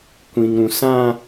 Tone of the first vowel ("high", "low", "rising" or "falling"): low